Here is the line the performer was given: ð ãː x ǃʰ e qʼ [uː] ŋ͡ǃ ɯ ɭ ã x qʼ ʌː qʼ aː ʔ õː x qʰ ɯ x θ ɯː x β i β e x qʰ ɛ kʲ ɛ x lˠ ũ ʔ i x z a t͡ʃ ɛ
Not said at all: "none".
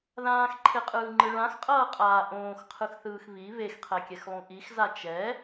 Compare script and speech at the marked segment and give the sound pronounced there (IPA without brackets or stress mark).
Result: ɯː